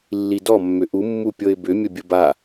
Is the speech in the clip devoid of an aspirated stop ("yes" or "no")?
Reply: yes